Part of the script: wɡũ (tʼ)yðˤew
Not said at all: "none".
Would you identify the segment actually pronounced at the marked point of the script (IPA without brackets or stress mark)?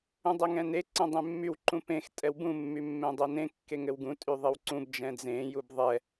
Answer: tʼ